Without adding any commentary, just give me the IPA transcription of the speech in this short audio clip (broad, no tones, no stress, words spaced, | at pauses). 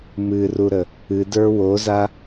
mɨruɾə | ɨdə˞ woza